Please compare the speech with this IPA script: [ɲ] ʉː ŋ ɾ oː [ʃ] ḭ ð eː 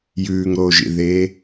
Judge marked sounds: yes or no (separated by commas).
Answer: no, no